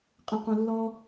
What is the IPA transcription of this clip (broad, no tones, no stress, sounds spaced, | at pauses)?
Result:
qʼ ə̃ q õ lː ɔ